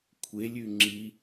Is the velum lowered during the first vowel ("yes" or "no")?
no